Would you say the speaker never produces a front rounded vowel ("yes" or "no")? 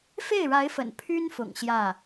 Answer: no